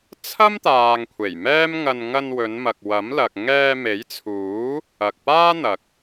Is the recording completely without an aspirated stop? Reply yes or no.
no